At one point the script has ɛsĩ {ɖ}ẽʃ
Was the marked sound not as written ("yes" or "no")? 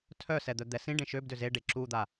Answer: no